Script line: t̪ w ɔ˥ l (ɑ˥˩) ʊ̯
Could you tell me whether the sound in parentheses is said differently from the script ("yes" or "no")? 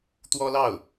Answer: no